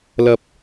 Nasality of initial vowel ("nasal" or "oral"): oral